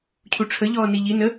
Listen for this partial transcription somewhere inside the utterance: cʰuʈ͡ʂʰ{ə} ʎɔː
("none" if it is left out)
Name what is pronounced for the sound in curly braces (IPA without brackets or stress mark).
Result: ə